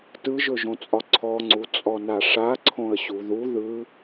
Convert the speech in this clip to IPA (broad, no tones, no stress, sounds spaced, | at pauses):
t ɯ ʒ ɵ ʒ õ t͡sʼ ɒ ǀʰ ɔ ŋ͡ǀ u t͡sʼ ɔ n a ʂ a ǀʰ õ ə̯ ɕ u ð u ð ɯ